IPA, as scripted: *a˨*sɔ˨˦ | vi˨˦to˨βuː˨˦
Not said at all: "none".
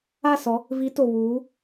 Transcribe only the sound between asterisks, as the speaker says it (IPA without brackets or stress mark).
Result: a˦˨